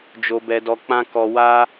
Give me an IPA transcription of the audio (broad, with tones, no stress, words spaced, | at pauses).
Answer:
d͡ʒo˧bɛ˧dɔ˧k͡pã˦ kɔ˧wa˦